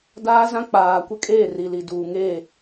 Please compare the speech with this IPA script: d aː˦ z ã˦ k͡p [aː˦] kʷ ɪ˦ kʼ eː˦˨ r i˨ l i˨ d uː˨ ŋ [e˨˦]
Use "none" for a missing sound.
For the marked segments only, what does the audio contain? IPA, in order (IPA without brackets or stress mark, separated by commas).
aː˨, e˦˨